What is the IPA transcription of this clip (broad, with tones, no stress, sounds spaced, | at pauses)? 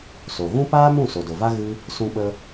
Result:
s o˨ ɣ ũ˦ p aː˦ m ũ˦˨ s o˨ d o˨ v a˦ ɣ ɨ˧ | s ũ˧ ɓ ə˧